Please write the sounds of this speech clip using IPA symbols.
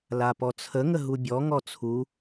l a p ɔ t͡sʰ ə ŋ ə ɦ u bʲ ɔ ŋ ɔ t͡sʰ u

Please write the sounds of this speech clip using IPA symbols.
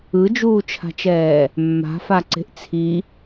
ɯ d͡ʒ uː t͡ʃʰ a̤ t͡ʃ ɛː | mː a̤ f a ǀ e̤ ʔ t͡sʰ i

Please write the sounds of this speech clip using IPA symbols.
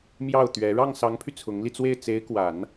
m j ɑ˥˩ ʊ̯ t̪ ɥ ɛ˧˥ ɻ ɑ˥˩ ŋ s ɑ˧˥ ŋ pʰ y˧ t͡sʰ ʊ˧˥ ŋ l i˧ t͡s w e˥˩ ɪ̯ t͡s e˧˥ ɪ̯ k w a˨˩˦ n

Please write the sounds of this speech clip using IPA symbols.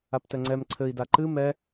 a p t ɛ ŋ͡ǀ ɛ m ǀʰ ɘ i̯ d a ǃ ɨ m ɛ

